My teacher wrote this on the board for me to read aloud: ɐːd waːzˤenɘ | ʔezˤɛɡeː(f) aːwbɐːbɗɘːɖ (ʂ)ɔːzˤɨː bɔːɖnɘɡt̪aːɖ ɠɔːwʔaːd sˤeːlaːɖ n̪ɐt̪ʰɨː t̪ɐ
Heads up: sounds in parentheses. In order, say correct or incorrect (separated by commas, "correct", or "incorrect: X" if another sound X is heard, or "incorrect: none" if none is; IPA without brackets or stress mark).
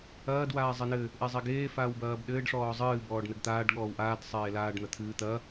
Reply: correct, correct